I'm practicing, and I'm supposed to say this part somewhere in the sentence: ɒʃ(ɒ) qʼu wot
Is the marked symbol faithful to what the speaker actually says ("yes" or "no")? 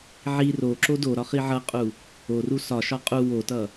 yes